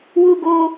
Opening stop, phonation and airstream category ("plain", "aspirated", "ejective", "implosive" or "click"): plain